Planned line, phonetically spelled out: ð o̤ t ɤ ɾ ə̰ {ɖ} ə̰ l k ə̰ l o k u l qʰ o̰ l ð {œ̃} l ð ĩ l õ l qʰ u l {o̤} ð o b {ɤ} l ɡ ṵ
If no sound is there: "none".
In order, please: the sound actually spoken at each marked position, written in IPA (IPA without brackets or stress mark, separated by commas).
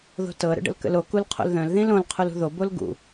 ɖ, œ̃, ṳ, o